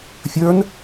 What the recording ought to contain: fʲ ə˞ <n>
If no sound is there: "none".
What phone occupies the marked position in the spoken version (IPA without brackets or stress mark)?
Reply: n